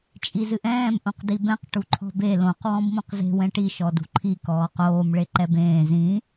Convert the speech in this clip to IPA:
t͡ʃʼ i z ɨ ʔ ɛ̃ː m ʔ ũ q d i b ɛ̃ q ʈ u ǃʰ ɔ̤ b e l õ q w ɔ̃ b m õ q z e̤ w ɛ̃ ʈ i ʃ ɔ d ṳ ǃʰ i k ɔː q oː m ɭ e ǃ ɛ b ẽː z ĩ

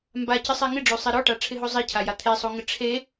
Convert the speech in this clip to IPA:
m b a c ɪ sˤ e ŋ ɪ ɖ͡ʐ o sˤ e ɾ ɔ ʈ a ʈ͡ʂʰ ɪ ɦ o zˤ i cʰ a j a t̪ʰ e sˤ o ŋ ɪ ʈ͡ʂʰ e

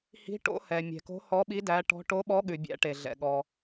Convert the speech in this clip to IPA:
h i̤˨˥ ʈ o̰˨˥ h ɛ˩ mʲ ɛ̤˩ k o̤˨˥ h ɔ˨˥ ɓ i˨˥ d æ˨˥ ʈ ɔ̤˨˥ ʈ o˨˥ ɓ ɔ˨˥ ɠ ʉ˩ bʲ æ̰˨˥ ʈ e˩ ɮ ɛ̰˩ ɠ ɔ˩

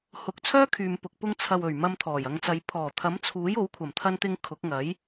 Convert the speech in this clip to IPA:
h ʊ˨˥ k̚ t͡sʰ œː˥ kʰ yː˨ m p ʊ˨ k̚ p ʊ˧ ŋ t͡sʰ ɐ˨ w ɵ˨˩ ɥ m ɐ˧ m t̪ʰ ɔː˨˩ j ɐ˨˧ ŋ t͡s ɐ˨˧ j pʰ ɔː˨˩ t̪ʰ ɐ˨˥ m t͡sʰ uː˨˥ j o˨˥ w kʷʰ ɐ˨˩ m t̪ʰ ɐ˧ n t̪ ɪ˧ ŋ kʰ ʊ˨˥ k̚ ŋ ɐ˨˥ j

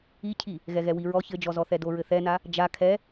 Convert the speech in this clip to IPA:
i cʰ i | ɣ ɛ ɣ ɛ w i ɹ ɔ ç ɘ d͡ʒ ɔ z ɔ θ ɛ d o ɹ ɘ θ ɛ n a | d͡ʒ a kʰ ɛ

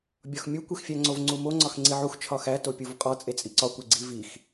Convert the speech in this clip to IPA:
bʲ ɒ x mʲ u kʷ e x fʲ æ ŋ͡ǀ o v ŋ͡ǀ u m o ŋ͡ǀ ɒ x ŋ͡ǀ i ʕ u x t͡ʃʰ ɒ x æ t o pʲ u v qʼ ɒ t͡sʼ e t͡sʼ i ǀ ɒ kʷ e ɡ͡ǀ i v i x

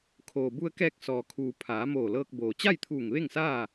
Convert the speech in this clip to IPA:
kʰ oː˩ b u˧ ə̯ k ɛː˧ k̚ s ɔː˩ kʰ uː˩ pʰ aː˩˧ m oː˧˩ l ɤː˧ k̚ b oː˩ t͡ɕ a˥˨ j t̪ʰ uː˧˩ ŋ ʋ e˥˨ ŋ s aː˥˨

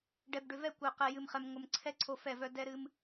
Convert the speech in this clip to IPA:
ɖ ɛ˨ b ɖ ʏ˨ v ɛ˦˨ kʷ œ˨ q ɛ˨ j ɨ˨ m χ ɛ˨ m ŋʷ ə˨ m ǀʰ ɛ˦ ǀʰ o˦ f ɛ˦˨ v œ˦ d ɛ˦ ɾ ɨ˦ m

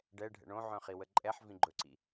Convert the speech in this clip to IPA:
ɖ ɛ ɖʱ ɛ̰ ɳ õ ʕ œ̃ χ i w ə ǃʼ ɛ ħ v ĩ ɡ͡ǃ ɵ ǀ ḭ

